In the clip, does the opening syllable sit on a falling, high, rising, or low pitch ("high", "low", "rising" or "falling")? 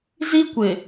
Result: high